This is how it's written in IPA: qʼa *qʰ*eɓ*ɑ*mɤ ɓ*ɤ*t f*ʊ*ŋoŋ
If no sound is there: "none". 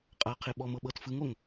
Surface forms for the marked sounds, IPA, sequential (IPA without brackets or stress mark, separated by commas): qʰ, ɔ, ɤ, ɯ